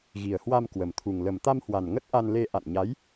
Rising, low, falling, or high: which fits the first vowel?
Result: low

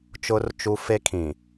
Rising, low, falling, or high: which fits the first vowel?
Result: high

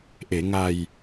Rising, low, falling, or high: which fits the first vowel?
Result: low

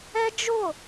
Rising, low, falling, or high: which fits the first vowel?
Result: high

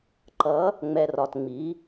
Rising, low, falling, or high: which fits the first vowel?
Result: rising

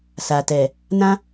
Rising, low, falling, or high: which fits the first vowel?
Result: low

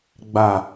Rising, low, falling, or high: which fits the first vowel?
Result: low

